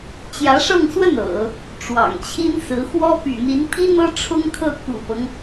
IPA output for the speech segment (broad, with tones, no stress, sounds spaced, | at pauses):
t͡ɕ j ä˧˥ ʂ ɤ˥˧ ŋ s w ə˥˩ n ɤ̰˨˩˦ | ʈ͡ʂ w ɑ̰˨˩ ŋ t͡ɕʰ i˥ n s ɹ̩˧˥ x w ɔ˥ p y̰˨˩ n̪ i˧˥ n pʰ i˥ n̪ ɤ˥ ʈ͡ʂʰ ʊ˥ ŋ kʰ ɤ˥˩ k ṵ˨˩ p ɤ˦ ŋ